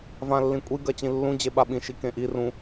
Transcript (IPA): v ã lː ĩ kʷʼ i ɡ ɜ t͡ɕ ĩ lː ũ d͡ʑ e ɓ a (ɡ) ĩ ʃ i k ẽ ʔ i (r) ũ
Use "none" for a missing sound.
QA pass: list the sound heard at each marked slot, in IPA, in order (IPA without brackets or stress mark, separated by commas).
ɓ, r